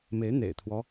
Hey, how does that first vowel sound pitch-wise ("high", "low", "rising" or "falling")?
rising